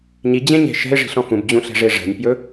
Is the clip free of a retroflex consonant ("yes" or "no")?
no